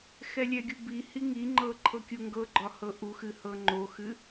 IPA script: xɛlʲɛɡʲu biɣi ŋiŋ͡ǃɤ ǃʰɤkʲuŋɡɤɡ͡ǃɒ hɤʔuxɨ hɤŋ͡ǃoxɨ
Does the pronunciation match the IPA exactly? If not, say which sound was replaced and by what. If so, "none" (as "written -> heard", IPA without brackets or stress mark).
ɣ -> h